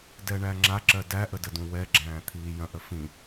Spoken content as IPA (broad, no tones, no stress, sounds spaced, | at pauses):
d ɛ ɳ æ ŋ͡ǁ a ǁ ɜ d æ ʔ ə d ə d ũ w ɛ ɡ͡ǁ æ̃ː t̪ʰ iː j ɐ̃ ʔ ə f ĩ